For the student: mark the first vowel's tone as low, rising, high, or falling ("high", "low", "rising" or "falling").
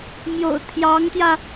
low